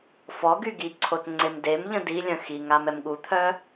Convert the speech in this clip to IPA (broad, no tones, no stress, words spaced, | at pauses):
fɔɡy ɡiǀʰot ŋ͡ǀemdemʎə̃ dilʲœ̃ xiŋam ɛmɠut̪ʰœ